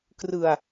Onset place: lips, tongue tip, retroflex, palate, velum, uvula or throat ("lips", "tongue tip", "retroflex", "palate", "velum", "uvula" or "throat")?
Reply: velum